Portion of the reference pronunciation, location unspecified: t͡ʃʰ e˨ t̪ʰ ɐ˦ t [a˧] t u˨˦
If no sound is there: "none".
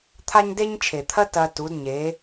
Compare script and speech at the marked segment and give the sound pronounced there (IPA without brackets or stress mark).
ɐ˧